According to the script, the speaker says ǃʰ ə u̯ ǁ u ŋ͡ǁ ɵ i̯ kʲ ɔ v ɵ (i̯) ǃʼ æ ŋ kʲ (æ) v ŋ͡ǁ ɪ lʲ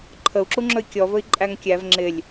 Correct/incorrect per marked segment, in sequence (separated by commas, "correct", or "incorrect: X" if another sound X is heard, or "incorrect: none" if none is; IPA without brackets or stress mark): correct, correct